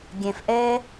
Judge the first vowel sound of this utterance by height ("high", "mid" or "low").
mid